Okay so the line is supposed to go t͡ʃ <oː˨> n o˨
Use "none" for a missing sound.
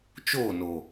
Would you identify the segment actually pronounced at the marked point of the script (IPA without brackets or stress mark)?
oː˦˨